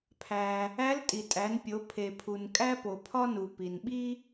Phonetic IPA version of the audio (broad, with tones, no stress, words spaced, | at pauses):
pʰæ˩ | æ˧˥ltʼi˩tʼæ˩˧npʲo˩˧ pʰe˩pʰu˩n kʼæ˥po˩pʰɒ˥nu˩ pi˩nɓi˥